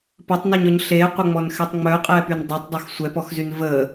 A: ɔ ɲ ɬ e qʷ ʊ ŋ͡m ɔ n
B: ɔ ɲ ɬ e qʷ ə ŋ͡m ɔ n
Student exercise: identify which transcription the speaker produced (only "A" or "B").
B